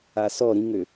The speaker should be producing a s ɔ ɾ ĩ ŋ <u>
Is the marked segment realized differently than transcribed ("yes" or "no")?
yes